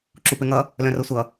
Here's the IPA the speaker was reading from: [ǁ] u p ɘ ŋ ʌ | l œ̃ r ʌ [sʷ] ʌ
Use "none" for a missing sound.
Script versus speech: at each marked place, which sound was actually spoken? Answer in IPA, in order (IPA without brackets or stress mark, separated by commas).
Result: ǁ, sʷ